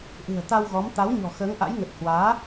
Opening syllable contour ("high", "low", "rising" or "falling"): low